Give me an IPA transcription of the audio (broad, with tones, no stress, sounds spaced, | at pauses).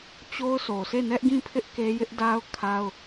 t͡ɕ o˦ ʊ̯ sʰ o˨ sʰ e˦˨ n ɛ˦ ʔ ɡ ĩ˦˨ pʰ ɪ˦ ʔ k e˦ j ɪ˦ ʔ d a˦ ʊ̯ kʰ a˦ ʊ̯